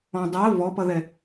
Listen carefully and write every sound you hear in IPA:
ɔ̃ dˤ ɜ v ɔ p ʌ ð ɛ

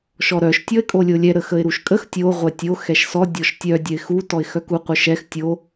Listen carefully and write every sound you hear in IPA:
ʃ ɔ ɾ œ ʃ tʲ ɔ ɪ̯ kʼ o lʲ o lʲ ɛ ɾ ə x ə ɪ̯ ɾ u ʃ kʼ ə x tʲ o ʁʷ ɛ tʲ o x ɛ ʃ s ɔ dʲ ɔ ʃ tʲ œ dʲ œ ɪ̯ x u t ɔ ɪ̯ x œ k u qʷ œ ʃ ɛ x tʲ o

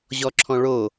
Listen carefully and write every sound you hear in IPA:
ʑ ɔ ǁʰ ɔ̃ ɭ o

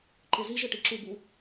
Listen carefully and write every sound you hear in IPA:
ǃ e z i ʒ ɨ ʈ i ǁ u b u

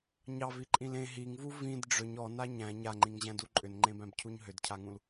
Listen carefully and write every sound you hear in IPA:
ɲ ɑ v i ǃʼ ĩ l ẽ ɦ i ŋ v u v ĩ d ɖ͡ʐ ʏ ɲ ɔ n a ɲ æ̃ ɲ a ŋ͡ǃ ĩ ŋ ʑ æ̃ d u ǃʼ ʏ n ŋ͡ǃ ẽ b æ̃ b cʰ u ɲ ɦ ʏ d cʰ a ŋ ũ l

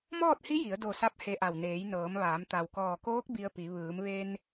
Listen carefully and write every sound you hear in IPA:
m ɔː˥˨ t̚ h i˧˥ j i˩˧ ə̯ d o˧˩ s a˧ p̚ h e˧ ʔ a˧˩ w n eː˩˧ j n ɤː˩˧ m ʋ aː˩˧ m t̪ a˩ w k ɔː˧˩ k oː˧˥ k̚ b i˧ ə̯ p i˩˧ ʋ ɯː˩˧ m ʋ e˧ n

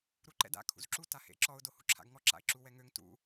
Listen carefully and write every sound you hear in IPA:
ɾ u ǃ ɛ̰ d a̰ kʰ ṵ z ǁ u t a h ḛ ǁ ɔ ʊ̯ d o h ṵ ǁʰ a̰ ɡ ŋ ɔ ǁ a̰ ɪ̯ ǁ u w ɛ ŋ ø ŋ t ṵ

